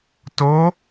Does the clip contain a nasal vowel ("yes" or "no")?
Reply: no